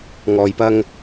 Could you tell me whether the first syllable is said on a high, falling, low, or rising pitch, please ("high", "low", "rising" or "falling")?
low